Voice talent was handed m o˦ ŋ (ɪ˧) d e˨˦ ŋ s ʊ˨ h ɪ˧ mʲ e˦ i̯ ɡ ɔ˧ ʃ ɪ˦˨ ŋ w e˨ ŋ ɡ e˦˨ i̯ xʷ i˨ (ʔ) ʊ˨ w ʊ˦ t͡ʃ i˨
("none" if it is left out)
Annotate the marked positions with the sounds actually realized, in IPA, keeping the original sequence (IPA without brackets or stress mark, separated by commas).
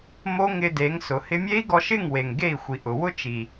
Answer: ɪ˧, ʔ